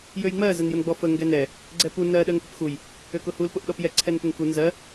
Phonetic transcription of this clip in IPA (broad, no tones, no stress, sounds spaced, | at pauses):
j ø j ŋ͡m ɜ z ə n j ʊ n ɡ͡b ɔ f ə ŋ ɡ ɛ n ɛ | ɡ͡ǀ ɛ p u n ɜ ɗ ɜ ŋ p ʏ p x u j | ø k ʊ h u l p ʊ ʔ ɗ ɔ p j ɛ ǀʰ ɛ n p ʏ ŋ k u n z ɜ